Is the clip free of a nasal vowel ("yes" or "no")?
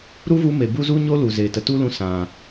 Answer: no